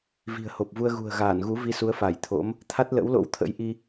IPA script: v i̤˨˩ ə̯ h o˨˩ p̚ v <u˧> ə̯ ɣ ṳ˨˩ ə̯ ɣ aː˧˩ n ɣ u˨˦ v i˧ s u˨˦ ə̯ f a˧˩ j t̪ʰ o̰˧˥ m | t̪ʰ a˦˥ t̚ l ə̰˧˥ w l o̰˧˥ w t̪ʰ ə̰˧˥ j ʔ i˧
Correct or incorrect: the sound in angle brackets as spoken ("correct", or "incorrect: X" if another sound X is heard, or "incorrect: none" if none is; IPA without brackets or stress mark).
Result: correct